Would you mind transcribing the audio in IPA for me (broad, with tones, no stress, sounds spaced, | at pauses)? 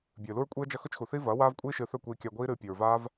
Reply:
bʲ ɨː˨ l u˦ ɹ kʷʼ i˦ ə̯ d͡ʒ ɐ˦ x ɵ˦ t͡ʃ x u˨ θ iː˦ v ɐː˨˦ w aː˦ v kʷʼ iː˦ ʃ ɨː˧ θ ɵ˦˨ kʷ iː˧ kʲ a˧ ɡʷ iː˦ ɾ ɨː˧ pʲ ʉ˨ ɹ v aː˦ v